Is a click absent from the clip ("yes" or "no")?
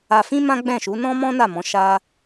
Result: yes